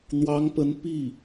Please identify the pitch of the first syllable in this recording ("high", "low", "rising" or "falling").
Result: rising